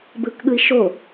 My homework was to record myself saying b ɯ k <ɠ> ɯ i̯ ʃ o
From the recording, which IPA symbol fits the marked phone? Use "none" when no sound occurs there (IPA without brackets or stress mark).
ɠ